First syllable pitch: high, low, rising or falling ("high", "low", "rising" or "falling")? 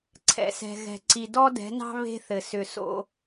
low